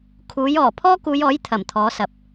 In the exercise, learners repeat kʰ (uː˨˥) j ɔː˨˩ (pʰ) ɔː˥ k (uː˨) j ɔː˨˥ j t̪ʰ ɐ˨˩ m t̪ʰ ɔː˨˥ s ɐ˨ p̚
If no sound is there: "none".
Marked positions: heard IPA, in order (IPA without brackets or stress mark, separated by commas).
uː˨˥, pʰ, uː˨˧